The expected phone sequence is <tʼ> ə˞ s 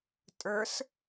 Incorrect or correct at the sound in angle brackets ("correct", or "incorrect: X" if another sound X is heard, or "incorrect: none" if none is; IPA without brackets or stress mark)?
correct